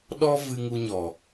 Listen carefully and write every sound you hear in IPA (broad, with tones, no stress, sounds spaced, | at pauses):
ɗ ɔ˦ v ɨ˧ ŋ u˧ ɲ ɔ˨